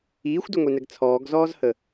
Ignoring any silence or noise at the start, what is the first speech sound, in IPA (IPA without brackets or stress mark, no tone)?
iː